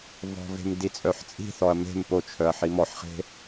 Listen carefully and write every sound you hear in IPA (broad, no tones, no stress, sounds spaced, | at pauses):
v ɔ̤ v e̤ m d i t͡sʼ œ ħ t͡sʼ i̤ θ ɔ ɐ̯ m e̤ m p o t͡ʃʰ œ ɐ̯ ħ i m ɔ ħ χ e̤